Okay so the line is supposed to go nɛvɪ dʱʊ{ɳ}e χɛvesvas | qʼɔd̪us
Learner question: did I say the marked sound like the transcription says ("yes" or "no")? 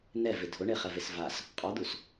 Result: yes